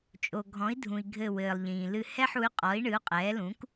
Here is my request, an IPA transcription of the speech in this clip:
t͡ʃʼ o˩ ɡʱ ɔ̃˩˥ i̯ dʱ ũ˩ i̯ ɡʱ ɘ˧˩ w ɘː˩ lˠ ʎ ĩː˩ l ɨ˧˩ h ɛ˥˧ ħ u˩˥ y̯ qʼ ɔ˩˥ i̯ ɳ ɨ˩˥ u̯ qʼ ɛː˩˥ l ũ˩˥ k

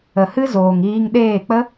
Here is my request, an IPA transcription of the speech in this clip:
ə˨ h ɨ˦ z oː˨ ŋ iː˧ ŋ ɗ eː˦˨ k͡p ə˦

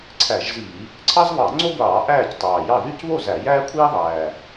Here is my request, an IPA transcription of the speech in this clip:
ǀʰ æ˧˩˧ ʒ z iː˧˩˧ | ǀʰ ɑ˥ z β ɑ˧˩˧ ŋ͡ǀ o˥ ɡʷ ɑː˧˩˧ ʔ æː˦˨ c tˤ ɑː˨˩ j ɑ˦˨ ð y˦˨ c β o˦˨ z æ˧˩˧ j æː˥ kʷʰ iː˥ ðˤ æː˨˩

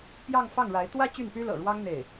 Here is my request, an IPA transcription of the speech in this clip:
p j ɑ˥˧ ŋ f ɑ˥˩ ŋ ɻ a˧˥ ɪ̯ t̪ w ä˥ t͡ɕ y˥˩ n p y˥ l ɤ̰˨˩ ɻ w ɑ˥ ŋ n̪ e˥˩ ɪ̯

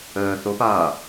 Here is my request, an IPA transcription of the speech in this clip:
əː θ o p aː

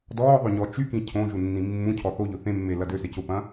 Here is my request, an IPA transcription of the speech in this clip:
d ɔː ðˤ ø ɲ ɔ t͡ʃ y k ĩ cʰ õ ʒ u nː ĩ mː ũ cʰ ɔ θ o ʎ ʊ θ ẽ mː e l ɐ d ø s e c ʊ p ɐ̃

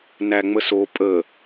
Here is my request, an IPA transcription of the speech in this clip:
n æ ŋ͡m ə s o pʼ ə

